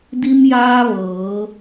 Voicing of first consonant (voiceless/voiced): voiced